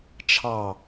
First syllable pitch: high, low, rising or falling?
low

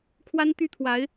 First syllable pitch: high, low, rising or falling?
high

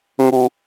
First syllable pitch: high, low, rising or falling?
low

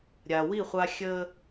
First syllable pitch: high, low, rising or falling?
low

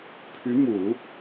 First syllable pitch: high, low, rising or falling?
rising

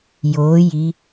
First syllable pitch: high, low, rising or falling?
rising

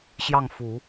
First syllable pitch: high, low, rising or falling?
falling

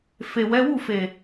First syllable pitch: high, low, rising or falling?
low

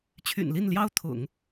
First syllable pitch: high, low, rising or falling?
low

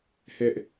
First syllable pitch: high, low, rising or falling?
high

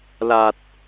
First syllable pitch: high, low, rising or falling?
low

